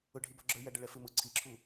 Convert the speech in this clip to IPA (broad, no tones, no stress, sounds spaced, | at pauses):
ʊ ɖʱ i b ɔ ɡ͡ǁ ə˞ j æ ɖ ə ɭ ɛ f ɪ m ʊ ǀʰ i ǁʰ u